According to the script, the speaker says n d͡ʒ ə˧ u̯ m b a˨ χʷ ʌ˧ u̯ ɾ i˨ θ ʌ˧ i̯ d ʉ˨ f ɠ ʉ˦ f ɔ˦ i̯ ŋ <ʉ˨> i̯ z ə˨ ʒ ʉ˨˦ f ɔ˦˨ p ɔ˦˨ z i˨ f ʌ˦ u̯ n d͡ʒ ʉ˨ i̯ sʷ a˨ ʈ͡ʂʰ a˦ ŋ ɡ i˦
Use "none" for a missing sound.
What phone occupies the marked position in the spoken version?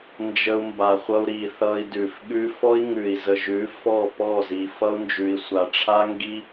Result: ʉ˨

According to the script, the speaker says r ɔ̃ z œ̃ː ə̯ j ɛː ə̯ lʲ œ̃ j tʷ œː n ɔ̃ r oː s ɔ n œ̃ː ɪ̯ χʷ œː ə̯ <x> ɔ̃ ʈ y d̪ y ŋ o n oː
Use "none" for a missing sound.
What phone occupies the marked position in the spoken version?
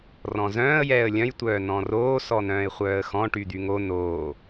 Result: x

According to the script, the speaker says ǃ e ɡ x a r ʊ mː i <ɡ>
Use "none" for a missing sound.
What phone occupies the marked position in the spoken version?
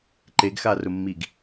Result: ɡ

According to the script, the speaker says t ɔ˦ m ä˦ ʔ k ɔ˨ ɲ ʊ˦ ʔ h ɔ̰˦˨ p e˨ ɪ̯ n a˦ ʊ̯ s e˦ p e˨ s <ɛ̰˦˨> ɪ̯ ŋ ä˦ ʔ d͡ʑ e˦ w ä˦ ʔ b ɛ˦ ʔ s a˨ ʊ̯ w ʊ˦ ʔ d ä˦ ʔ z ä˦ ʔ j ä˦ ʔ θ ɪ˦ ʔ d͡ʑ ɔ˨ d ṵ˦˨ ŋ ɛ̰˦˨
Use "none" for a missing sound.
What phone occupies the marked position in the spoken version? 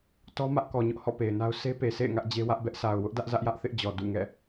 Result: ḛ˦˨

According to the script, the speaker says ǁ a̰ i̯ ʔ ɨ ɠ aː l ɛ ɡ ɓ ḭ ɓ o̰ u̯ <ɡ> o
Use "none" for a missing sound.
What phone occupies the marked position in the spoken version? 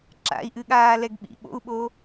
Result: ɓ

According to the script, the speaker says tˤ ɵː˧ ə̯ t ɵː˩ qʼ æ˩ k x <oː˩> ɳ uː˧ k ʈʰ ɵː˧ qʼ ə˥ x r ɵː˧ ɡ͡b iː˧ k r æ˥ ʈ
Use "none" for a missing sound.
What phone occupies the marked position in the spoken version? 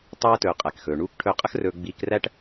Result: ɵː˩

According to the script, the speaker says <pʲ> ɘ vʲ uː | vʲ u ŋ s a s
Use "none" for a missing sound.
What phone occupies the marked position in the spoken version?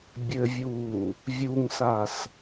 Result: bʲ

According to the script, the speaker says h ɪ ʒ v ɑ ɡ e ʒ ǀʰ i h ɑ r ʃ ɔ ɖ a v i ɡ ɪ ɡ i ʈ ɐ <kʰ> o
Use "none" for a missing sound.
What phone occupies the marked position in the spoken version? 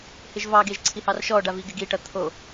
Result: t̪ʰ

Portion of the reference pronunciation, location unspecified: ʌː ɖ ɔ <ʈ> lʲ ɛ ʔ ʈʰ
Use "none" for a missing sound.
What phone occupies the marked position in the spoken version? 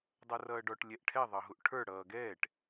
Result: ʈ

